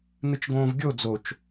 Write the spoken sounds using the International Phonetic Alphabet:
n̪ɨt͡ʃɡõːvɡʲo d͡zot͡ʃ

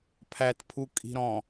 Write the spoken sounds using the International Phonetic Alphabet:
pʰæt pʰukʼi̤ɾɔ̃

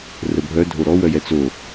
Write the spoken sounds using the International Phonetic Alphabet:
rəbʱœ dʱoɾɔ wœjɛt͡so

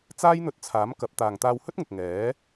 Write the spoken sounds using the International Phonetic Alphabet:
t͡saː˥jn̪ɵ˧t̚t͡sʰaː˨˥mkɐ˨˥p̚ t̪aː˨ŋt̪aː˧whɵ˥t̚ŋʊ˨k̚ ŋɛː˨˥

